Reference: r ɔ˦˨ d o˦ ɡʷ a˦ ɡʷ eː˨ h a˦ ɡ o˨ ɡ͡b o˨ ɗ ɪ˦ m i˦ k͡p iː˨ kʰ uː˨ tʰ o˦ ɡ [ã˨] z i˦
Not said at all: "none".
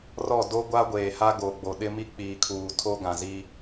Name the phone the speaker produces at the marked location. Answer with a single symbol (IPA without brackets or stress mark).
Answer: ã˨